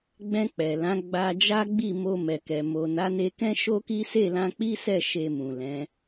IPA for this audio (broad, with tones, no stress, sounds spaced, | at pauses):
ɡ͡b ɛ̃˧ k͡p ɛ˨ l ã˨˦ ɡ͡b a˧ d͡ʒ a˦ ɡ͡b i˦˨ m o˧ m ɛ˨ k ɛ˨ m o˨ n a˨˦ n e˧ k ɛ̃˦ ʃ o˦ k i˦ s e˦˨ l ã˧ k͡p i˦ s ɛ˦˨ ʃ e˧ m ũ˨ l ɛ̃˨˦